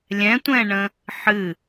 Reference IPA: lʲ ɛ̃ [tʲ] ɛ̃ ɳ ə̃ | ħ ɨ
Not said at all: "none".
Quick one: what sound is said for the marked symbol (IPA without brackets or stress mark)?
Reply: tʷ